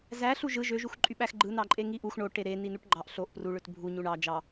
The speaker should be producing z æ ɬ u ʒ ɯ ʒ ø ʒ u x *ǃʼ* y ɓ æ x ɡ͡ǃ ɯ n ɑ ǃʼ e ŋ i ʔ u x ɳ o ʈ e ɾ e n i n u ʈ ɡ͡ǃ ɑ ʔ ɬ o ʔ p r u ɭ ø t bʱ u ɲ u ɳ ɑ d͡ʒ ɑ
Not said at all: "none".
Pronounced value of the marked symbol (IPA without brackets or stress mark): ǃʼ